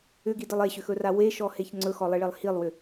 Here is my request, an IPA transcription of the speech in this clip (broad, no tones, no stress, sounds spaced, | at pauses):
ʏ ɡ i d ə lˠ e ɕ ʏ x ɵ r a w e ʃ ɔ h e ç ŋ͡ǀ ɵ x ɔ lˠ i ɭ e lˠ h i lˠ w ʏ